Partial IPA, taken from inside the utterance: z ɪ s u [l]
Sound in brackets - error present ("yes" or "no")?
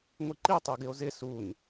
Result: yes